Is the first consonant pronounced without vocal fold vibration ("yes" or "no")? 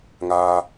no